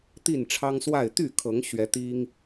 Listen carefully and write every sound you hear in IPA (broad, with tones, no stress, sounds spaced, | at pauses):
t̪ i˥˨ n ʈ͡ʂʰ ɑ˦ ŋ s w a˥˨ ɪ̯ t̪ y˥˨ kʰ ɤ˨˦ ŋ ɕ ɥ ɛ˨˦ t̪ i˦ ŋ